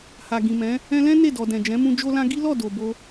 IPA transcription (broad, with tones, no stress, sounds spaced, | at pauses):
h a˨ ɡ ĩ˨ m ɛ̃˨˦ | ɛ̃˧ l ɛ̃˦ n e˦˨ d ɔ˨ d ɛ̃˨ d͡ʒ ɛ̃˨˦ m ũ˧ d͡ʒ o˦ l ã˦ ɡ i˦ l ɔ˦˨ d o˨ b o˧